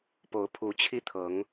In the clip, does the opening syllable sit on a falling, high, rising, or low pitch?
rising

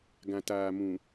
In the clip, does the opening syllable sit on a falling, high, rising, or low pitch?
low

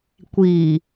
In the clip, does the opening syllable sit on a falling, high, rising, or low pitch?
low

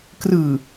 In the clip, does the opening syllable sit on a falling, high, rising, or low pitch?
low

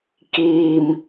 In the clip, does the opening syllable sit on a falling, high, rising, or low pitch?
low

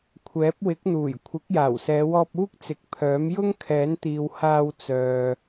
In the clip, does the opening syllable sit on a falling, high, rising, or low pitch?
rising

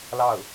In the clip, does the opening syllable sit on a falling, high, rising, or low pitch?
falling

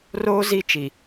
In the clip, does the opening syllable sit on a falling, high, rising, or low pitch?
high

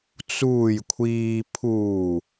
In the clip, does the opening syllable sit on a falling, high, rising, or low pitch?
low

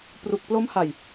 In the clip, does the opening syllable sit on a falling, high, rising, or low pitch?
low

